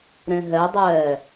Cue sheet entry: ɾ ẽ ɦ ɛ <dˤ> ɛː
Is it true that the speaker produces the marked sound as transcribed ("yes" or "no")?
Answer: yes